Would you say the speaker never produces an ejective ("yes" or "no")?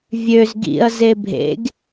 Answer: yes